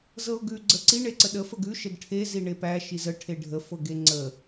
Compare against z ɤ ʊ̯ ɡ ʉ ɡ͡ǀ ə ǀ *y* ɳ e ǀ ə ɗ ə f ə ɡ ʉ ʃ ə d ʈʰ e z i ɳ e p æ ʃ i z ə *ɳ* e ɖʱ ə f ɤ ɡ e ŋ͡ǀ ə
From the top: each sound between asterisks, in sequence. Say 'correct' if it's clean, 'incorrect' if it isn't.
incorrect: i, incorrect: ʈʰ

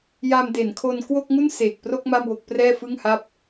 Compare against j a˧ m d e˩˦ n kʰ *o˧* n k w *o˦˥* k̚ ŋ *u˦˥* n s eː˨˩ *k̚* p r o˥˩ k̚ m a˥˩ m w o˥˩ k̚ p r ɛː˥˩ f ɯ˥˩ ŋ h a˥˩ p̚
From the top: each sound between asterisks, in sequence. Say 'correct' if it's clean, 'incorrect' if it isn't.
correct, incorrect: o˥˩, incorrect: u˥˩, correct

